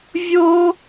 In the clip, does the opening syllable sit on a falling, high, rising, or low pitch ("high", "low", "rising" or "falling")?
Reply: high